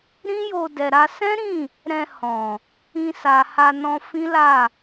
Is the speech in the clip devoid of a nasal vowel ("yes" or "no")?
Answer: no